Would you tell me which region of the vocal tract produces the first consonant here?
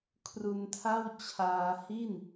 velum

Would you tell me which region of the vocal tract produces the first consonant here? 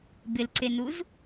lips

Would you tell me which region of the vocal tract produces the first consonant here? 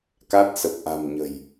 velum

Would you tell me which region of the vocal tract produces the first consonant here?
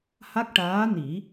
throat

